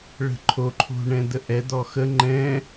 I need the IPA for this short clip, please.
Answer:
ɭ ə̤ ǃʰ o ǃʰ o̤ ɳ ɛ̃ d̪ ə ʔ ɛ d̪ ɔ x ə ŋ͡ǃ ɛ̃

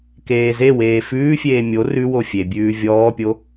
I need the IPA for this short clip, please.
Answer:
k eː z e w eː f ʉː fʲ eː mʲ o r ʉ w o fʲ e bʲ ʉː vʲ ɔː pʲ o

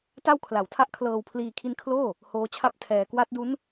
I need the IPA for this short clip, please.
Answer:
t a˥˩ w kʰ l a˩˦ w tʰ a˥˩ ʔ kʰ l ɤː˧ w pʰ l iː˧ kʰ i˦˥ n kʰ l oː˥˩ | h oː˦˥ t͡ɕʰ a˥˩ p̚ tʰ ɛː˧ k w a˦˥ t̚ d u˦˥ n

